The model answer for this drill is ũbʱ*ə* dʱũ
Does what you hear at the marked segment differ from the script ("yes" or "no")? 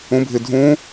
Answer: yes